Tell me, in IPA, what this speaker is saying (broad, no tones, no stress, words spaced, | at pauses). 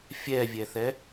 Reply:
fʲɛvʲɛθɛ